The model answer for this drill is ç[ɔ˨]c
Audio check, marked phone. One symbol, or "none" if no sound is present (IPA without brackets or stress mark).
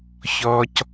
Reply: ɔ˦